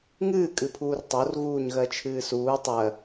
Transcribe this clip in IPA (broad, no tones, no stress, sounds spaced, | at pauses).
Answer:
ŋ ɨː kʼ ɨ pʰ uː r tˤ o r ɣ uː ɲ ɣ ɜ t͡ʃʰ ɨː s uː tˤ ɜ